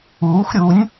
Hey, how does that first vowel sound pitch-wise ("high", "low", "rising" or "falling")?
rising